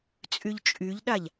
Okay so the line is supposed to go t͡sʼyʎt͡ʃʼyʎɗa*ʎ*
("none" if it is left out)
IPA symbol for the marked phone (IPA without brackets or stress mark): ʎ